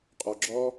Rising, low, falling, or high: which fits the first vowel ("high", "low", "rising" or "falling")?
low